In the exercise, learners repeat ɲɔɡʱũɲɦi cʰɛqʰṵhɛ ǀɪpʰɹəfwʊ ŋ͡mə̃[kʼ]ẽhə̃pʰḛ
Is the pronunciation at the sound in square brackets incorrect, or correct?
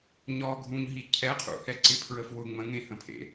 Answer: incorrect